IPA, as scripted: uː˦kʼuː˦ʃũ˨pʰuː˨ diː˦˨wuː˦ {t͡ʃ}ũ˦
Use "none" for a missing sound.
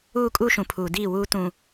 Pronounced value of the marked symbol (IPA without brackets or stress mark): t